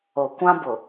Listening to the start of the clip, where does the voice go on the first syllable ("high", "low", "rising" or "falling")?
low